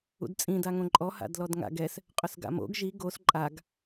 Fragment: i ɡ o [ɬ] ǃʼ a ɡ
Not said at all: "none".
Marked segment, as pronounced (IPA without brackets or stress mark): s